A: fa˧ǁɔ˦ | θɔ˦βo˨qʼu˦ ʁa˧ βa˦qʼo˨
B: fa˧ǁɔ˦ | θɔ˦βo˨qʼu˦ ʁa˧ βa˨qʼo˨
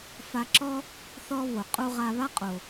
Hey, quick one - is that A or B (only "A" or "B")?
A